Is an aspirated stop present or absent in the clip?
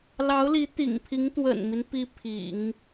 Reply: present